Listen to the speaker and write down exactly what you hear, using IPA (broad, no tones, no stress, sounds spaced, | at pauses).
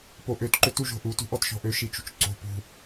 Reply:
p o ʔ ø t ǃ ø t u ʒ o̤ ʔ u t ṳ ʔ ɔ t ʃ ɔ̤ ʔ ø ʃ i t͡ʃ ṳ t͡ʃ ǀ o̤ p ṳ